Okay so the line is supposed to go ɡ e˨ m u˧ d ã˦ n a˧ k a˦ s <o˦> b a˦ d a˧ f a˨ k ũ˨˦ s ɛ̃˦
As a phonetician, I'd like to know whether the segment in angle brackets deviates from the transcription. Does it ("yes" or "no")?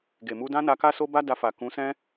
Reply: no